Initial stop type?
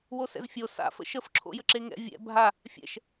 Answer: click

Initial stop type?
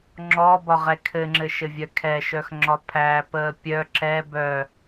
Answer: click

